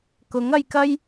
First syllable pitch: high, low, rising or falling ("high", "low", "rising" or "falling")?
rising